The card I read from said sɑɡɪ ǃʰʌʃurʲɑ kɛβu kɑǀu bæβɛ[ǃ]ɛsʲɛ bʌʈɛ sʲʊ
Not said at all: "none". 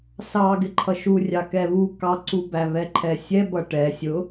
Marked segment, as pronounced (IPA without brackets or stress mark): ǃʰ